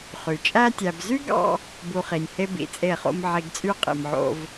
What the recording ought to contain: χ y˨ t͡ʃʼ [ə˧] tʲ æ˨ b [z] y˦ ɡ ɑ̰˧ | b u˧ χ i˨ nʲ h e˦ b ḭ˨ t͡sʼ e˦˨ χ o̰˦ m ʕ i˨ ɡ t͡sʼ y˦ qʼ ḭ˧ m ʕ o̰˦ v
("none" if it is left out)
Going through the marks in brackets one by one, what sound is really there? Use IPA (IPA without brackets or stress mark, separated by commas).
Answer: æ˧, z